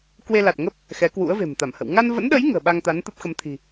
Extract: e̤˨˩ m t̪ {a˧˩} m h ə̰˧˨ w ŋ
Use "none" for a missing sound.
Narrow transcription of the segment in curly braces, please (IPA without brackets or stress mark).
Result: a˧˩